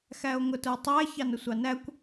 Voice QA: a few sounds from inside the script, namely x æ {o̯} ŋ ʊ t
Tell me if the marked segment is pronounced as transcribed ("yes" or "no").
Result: yes